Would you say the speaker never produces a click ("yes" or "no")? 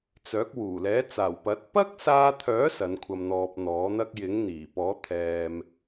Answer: yes